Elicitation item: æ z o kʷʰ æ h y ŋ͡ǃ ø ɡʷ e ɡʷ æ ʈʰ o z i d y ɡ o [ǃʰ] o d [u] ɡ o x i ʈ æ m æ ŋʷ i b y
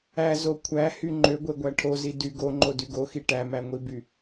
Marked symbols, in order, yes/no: no, no

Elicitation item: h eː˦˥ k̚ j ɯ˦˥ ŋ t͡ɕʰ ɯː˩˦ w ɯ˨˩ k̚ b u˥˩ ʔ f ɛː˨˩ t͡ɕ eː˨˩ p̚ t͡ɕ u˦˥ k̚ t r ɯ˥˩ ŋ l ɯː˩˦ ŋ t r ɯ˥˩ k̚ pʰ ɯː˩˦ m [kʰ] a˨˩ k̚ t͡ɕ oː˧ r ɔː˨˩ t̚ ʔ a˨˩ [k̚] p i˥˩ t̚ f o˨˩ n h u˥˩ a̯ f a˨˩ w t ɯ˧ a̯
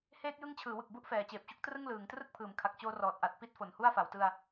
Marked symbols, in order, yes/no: yes, no

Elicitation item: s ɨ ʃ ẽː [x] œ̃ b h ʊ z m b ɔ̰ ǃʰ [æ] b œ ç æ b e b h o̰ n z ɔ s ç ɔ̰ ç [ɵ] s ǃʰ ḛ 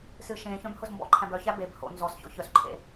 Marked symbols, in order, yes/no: no, no, no

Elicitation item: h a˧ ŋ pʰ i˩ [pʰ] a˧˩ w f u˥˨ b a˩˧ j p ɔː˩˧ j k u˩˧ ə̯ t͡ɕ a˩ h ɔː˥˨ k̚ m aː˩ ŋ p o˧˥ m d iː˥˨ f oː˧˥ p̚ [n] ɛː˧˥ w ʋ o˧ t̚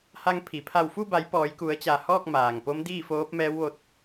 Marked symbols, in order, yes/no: yes, no

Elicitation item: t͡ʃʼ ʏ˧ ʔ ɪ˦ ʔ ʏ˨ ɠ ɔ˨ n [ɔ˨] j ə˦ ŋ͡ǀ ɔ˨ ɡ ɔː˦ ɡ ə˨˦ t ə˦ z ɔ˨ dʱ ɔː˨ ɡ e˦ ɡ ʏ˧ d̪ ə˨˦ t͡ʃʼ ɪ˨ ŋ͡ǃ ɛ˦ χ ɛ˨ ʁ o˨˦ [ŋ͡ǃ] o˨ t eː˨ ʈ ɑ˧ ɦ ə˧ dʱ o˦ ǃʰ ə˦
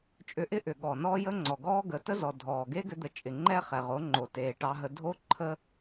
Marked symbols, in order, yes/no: no, yes

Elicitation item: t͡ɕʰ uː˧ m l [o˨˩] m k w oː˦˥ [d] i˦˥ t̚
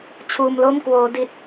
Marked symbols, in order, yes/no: no, yes

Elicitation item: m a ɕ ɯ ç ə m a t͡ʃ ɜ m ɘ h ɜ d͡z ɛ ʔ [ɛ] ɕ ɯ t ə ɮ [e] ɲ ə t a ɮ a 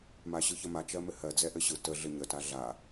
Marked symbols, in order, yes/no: no, no

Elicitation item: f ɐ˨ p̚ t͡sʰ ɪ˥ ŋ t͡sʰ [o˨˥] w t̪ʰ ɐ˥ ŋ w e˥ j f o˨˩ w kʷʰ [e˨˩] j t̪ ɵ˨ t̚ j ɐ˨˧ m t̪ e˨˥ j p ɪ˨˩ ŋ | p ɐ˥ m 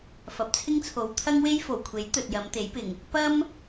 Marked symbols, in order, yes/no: no, no

